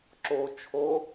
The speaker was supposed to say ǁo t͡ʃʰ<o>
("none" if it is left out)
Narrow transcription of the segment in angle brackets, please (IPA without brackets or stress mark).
o